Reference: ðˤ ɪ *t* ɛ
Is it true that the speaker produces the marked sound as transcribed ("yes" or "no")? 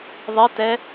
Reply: yes